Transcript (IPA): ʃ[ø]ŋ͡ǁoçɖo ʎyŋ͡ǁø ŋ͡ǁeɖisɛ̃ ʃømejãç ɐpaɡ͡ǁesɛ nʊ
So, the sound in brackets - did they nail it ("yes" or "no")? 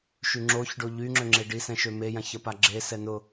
no